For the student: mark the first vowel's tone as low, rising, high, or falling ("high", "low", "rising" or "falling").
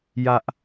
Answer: high